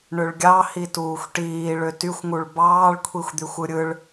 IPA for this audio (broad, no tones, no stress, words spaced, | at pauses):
ɳøɭɡʲɑhi tuːxʷʈiː ɭøtyxʷŋuɭ bɑːɭkʷʰixʷd̪yxʷɯ ɾʲɯɭ